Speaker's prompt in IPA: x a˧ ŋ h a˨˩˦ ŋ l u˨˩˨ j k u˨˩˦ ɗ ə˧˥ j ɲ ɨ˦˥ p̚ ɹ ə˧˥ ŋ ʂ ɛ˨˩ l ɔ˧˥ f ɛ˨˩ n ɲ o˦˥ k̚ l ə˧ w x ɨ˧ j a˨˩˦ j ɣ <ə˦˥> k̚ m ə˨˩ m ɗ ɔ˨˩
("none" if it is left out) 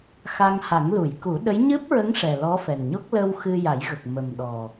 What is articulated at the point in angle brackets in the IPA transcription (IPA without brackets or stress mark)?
ə˨˩